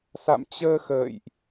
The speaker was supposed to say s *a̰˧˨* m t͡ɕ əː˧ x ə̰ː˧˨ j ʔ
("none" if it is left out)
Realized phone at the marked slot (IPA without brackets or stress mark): a̰˧˨